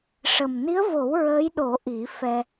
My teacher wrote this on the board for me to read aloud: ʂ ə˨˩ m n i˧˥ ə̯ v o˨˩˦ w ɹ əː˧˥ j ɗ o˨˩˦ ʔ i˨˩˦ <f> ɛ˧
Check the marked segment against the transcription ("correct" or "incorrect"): correct